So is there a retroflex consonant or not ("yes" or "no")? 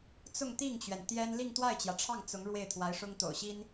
yes